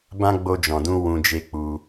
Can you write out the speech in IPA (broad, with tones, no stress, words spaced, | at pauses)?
bã˦ɡ͡bo˧d͡ʒɔ̃˨dũ˧ wũ˧d͡ʒe˦k͡pu˧